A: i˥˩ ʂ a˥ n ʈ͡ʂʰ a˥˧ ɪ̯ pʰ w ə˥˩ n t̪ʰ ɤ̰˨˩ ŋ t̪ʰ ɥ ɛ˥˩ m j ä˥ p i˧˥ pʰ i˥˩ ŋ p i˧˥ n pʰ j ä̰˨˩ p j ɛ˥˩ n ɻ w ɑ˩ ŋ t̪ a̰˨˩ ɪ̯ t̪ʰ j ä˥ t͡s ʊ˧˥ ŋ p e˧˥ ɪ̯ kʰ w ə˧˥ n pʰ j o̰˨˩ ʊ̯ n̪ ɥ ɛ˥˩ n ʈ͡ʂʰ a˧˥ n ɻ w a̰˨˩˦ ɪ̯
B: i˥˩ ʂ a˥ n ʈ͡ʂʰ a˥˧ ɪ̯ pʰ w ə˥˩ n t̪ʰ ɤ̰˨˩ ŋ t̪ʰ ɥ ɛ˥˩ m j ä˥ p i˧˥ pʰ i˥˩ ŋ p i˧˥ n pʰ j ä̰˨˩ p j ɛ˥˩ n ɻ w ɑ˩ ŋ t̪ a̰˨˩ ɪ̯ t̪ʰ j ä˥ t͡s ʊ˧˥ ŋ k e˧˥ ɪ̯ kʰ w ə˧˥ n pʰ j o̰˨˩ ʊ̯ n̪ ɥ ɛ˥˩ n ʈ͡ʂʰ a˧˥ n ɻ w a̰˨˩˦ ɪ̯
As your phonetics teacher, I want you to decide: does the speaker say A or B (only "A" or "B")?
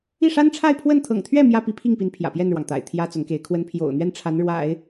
B